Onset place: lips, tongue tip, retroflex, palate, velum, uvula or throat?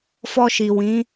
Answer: lips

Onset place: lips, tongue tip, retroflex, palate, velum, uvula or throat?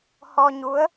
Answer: throat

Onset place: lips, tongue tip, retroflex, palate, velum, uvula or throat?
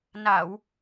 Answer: tongue tip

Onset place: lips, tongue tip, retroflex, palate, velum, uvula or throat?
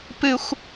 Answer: lips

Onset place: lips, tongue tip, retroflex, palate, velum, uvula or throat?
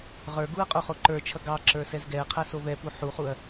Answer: uvula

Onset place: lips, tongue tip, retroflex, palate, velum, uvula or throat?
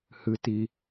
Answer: throat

